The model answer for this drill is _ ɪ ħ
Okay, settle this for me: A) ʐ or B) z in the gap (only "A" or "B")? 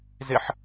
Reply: B